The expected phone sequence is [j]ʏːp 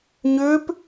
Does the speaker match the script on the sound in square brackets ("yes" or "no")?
no